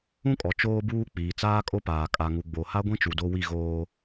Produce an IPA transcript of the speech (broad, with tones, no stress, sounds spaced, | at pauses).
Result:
ũ˦ kʼ ɔ˨ t͡ʃ oː˦ b uː˦ k͡p iː˨ t͡s aː˦ kʼ o˦ p aː˨ kʼ a˨ ŋ u˨ ɡ͡b o˨ h a˦ ɡʷ ĩ˦ t͡ʃ u˨ d o˦ w i˦˨ ɣ oː˦